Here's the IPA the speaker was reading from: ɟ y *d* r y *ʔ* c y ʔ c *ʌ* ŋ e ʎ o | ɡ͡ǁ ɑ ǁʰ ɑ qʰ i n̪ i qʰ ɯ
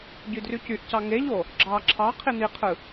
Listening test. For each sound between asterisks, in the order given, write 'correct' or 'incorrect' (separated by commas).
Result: correct, incorrect, incorrect